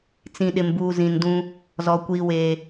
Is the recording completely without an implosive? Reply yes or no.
no